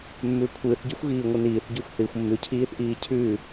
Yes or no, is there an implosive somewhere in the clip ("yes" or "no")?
no